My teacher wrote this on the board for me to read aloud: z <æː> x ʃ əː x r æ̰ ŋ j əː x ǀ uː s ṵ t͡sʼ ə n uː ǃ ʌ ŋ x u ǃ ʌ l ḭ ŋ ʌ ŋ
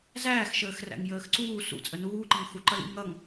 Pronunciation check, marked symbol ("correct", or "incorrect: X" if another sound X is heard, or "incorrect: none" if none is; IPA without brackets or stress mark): correct